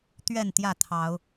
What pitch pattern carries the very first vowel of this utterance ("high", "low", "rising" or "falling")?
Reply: falling